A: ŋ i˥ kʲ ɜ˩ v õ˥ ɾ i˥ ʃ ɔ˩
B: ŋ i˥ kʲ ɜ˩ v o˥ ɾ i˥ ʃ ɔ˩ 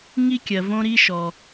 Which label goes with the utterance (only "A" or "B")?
A